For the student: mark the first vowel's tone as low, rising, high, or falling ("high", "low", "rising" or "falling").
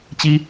high